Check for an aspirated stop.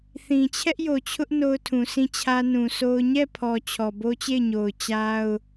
present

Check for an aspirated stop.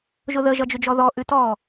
absent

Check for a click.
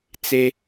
absent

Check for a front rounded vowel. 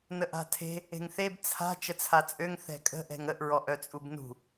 present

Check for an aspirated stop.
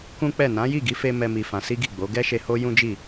absent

